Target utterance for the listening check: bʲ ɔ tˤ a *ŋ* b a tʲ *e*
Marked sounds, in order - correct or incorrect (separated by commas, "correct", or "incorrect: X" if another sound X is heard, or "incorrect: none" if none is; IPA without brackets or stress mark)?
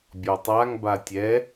correct, incorrect: ɛ